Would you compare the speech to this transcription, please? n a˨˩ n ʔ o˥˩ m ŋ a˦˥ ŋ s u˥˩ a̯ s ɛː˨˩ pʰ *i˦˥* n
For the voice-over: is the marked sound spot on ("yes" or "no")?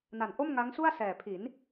no